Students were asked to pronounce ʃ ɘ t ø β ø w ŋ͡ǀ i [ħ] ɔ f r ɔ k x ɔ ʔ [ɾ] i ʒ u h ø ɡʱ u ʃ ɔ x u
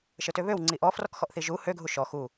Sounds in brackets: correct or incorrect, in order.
incorrect: ʔ, incorrect: θ

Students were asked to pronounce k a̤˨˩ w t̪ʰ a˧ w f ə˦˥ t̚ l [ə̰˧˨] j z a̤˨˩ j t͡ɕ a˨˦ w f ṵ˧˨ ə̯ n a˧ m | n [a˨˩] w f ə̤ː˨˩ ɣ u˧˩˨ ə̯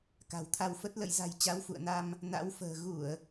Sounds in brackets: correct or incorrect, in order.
correct, incorrect: a̰˧˥

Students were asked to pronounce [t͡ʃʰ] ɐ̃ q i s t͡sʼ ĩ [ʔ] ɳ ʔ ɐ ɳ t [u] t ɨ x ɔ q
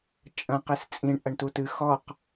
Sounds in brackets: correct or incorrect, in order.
incorrect: t͡ʃʼ, incorrect: none, correct

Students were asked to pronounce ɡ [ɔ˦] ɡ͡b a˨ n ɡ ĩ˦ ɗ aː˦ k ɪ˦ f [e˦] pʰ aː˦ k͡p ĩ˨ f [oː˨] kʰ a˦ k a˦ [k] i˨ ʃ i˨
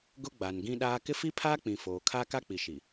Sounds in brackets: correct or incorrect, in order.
incorrect: ʊ˦, incorrect: i˦, correct, incorrect: k͡p

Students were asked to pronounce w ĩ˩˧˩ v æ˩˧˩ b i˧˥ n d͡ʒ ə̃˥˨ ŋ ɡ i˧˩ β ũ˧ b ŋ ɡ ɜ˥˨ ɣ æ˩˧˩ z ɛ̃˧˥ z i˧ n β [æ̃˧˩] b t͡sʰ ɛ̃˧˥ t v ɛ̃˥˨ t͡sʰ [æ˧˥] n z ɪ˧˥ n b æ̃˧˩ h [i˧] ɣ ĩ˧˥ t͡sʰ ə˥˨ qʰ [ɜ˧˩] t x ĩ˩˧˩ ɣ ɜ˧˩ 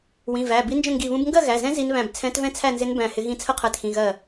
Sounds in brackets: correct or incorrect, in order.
correct, incorrect: æ˥˨, incorrect: ɪ˧, correct

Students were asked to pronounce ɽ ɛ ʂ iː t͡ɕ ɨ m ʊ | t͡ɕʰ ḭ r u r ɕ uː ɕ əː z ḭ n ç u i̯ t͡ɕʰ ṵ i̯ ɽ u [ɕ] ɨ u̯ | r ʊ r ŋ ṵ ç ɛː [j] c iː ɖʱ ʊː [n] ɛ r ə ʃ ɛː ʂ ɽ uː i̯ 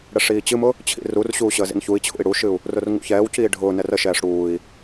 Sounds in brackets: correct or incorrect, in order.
incorrect: ʃ, incorrect: w, correct

